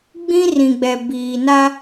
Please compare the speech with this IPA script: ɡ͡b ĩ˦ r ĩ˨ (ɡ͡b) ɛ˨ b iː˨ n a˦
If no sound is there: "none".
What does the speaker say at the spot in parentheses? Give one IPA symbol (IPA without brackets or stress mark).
ɡ͡b